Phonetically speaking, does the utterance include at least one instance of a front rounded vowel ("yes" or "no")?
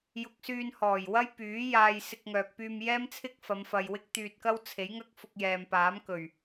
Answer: yes